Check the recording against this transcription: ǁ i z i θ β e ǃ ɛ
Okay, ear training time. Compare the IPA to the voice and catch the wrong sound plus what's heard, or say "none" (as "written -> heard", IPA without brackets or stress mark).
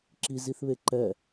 none